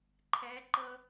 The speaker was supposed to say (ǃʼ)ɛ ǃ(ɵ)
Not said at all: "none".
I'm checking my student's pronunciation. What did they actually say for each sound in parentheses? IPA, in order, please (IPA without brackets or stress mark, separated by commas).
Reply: ǃʰ, ɤ